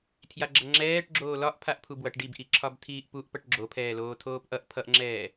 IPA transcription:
tʰ j a ɡ͡ǁ ʌ ŋ͡ǁ ɛː ʈ ɡ͡ǁ oː l ɒ ʔ pʰ a ʔ pʰ u b w ʌ ʈ ɖ i b ʔ i ǁʰ ɒ b tʰ iː ʔ p u ʔ p ʌ ʈ ɡ͡ǁ o pʰ ɛː l oː tʰ oː p ʔ ʌ ʔ pʰ ʌ ʔ ŋ͡ǁ ɛː

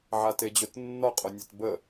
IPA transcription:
ʕ a t e d͡ʑ o t nː ɒ qʼ o nʲ e t b ə

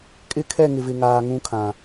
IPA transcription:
kʼ ɪ˦ kʰ ɛ˦˨ ŋ ɪ˨ v ɪ˨ ŋ aː˨ ŋ ũ˦ kʰ ã˨

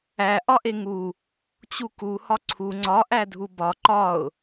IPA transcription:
æ ʔ ɒ ʔ e ŋ u | t͡ɕ u k u h ɒ ǀʰ u ŋ͡ǀ ɒ ʔ æ dʱ u b ɒ ǃ ɒ ʊ̯

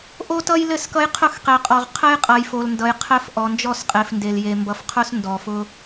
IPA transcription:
ʔ o˦ t ʌ˦ j l ɘ˦˨ s k ʌ˦ j qʰ ʊ˦˨ x q e˨ qʼ ɔ˨ ʁ qʰ ɘ˦ j qʼ ʌ˨ j f o˨ l n d ʌ˨ j qʰ ɘ˦ f ʔ ɔ˨ n d͡ʒ ɔ˦˨ s qʼ e˨ f n d e˨ l j e˨ m b ʌ˨ f qʰ ʊ˦ s n d ɔ˨ f ʊ˦

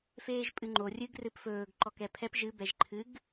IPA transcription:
f eː ʒ pʼ ɨ ŋ͡ǃ o rʲ ɨ ɡ r ɨ p f ɵː ɡ ǃ ɔ k ɛ pʰ ɛ p ʒ ɨ b ɛ ʒ ǃʰ ɨ ɡ

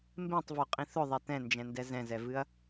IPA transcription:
m b ẽ tˤ v o qʼ ĩ θ ʊ ðˤ ɛ t ɛ̃ n d͡ʒ ɛ̃ n d ɛ z ɛ̃ z ɛ v ɨ ɐ̯

